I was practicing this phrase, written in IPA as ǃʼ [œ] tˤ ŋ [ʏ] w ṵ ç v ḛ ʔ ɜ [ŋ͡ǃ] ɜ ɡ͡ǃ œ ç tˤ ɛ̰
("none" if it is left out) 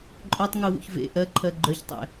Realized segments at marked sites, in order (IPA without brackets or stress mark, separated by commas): œ, u, ǃʰ